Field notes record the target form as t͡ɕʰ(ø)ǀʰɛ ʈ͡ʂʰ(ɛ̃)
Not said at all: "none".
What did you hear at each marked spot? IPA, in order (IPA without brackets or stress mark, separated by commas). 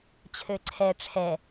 ø, ɛ